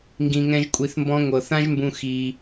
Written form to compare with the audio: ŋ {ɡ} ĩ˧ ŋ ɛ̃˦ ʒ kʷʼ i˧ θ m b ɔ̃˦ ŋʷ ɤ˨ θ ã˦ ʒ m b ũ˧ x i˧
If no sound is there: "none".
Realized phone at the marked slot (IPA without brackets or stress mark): ɡ